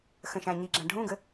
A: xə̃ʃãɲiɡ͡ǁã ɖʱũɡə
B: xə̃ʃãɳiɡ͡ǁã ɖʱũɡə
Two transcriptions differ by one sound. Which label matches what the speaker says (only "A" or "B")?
A